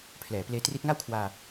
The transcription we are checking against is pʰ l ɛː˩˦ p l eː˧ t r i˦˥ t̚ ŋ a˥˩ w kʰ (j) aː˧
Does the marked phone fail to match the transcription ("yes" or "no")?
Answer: yes